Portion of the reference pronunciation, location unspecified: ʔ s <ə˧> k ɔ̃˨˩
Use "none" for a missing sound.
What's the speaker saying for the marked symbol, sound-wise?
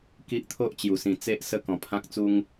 ə˦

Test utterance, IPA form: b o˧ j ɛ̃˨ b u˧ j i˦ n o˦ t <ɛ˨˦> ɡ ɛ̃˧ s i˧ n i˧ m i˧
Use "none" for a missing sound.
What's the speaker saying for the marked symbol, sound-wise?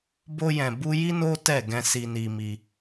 ɛ˦˨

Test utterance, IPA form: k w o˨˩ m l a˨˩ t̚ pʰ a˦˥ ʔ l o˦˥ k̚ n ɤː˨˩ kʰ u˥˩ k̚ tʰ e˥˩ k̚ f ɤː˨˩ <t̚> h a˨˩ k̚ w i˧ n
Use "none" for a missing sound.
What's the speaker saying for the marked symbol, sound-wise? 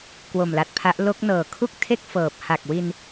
p̚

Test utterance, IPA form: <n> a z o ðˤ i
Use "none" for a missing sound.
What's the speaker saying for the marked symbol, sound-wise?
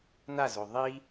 n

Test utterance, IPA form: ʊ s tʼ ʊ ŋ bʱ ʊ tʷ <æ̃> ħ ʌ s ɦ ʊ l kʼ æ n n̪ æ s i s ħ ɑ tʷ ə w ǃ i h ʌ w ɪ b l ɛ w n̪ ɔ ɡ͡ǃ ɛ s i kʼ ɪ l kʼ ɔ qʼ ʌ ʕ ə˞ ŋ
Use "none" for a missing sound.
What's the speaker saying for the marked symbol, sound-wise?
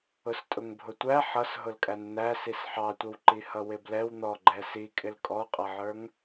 æ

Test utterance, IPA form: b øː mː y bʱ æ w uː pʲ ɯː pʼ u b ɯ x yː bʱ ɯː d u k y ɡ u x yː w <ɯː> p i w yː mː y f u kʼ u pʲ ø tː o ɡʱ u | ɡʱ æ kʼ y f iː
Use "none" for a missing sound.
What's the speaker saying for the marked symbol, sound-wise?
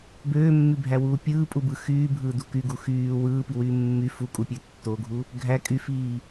ɯː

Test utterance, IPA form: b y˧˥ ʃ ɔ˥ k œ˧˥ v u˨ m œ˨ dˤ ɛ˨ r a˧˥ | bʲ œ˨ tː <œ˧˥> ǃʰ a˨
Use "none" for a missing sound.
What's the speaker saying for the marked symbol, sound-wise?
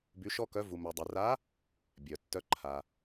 œ˧˥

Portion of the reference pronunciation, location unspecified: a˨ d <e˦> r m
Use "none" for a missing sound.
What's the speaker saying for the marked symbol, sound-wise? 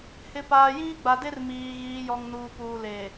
e˦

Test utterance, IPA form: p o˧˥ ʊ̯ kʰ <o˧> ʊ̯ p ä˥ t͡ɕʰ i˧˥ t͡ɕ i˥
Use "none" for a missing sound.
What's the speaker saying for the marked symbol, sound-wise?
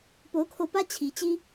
o˧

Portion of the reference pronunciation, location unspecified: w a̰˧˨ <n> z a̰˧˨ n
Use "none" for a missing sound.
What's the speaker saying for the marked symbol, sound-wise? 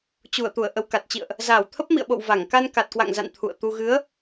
ŋ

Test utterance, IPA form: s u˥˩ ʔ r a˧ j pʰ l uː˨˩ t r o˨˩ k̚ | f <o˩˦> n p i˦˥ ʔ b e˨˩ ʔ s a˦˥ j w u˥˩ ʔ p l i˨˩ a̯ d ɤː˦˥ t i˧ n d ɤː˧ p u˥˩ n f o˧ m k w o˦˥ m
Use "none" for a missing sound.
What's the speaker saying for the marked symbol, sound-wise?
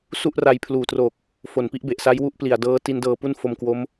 o˨˩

